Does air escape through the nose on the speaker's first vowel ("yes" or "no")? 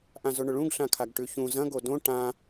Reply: yes